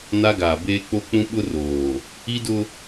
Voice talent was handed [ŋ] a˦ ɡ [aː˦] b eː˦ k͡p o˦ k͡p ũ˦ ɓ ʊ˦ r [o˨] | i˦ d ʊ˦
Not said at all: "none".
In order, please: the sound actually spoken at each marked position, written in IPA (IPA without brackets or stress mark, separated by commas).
n, aː˨, oː˨